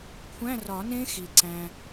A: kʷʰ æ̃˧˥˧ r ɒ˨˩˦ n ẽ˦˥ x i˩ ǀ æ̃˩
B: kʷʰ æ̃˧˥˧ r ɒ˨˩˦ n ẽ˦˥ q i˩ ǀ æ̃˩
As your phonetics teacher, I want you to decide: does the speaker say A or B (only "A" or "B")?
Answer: A